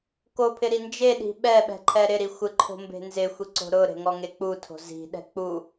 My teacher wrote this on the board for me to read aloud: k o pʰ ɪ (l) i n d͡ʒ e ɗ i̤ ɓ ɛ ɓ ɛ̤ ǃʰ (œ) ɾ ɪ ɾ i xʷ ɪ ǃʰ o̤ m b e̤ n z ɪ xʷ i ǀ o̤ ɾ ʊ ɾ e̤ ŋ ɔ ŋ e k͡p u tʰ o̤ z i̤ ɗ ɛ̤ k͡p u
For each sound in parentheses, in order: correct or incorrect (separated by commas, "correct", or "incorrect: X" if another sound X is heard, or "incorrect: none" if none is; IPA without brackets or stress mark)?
incorrect: ɾ, incorrect: ɛ